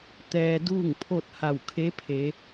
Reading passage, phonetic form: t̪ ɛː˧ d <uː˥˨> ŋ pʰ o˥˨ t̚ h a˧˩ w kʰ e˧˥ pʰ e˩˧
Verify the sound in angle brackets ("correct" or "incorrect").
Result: correct